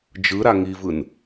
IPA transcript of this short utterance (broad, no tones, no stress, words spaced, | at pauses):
d͡ʒɯɾa ŋivɯn